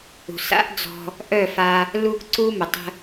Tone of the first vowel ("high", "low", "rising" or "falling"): low